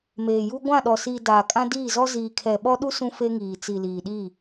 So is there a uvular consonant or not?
no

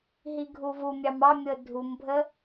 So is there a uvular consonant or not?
no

